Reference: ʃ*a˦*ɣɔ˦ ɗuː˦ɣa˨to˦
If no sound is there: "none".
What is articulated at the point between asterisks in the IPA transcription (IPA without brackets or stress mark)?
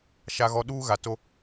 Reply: a˦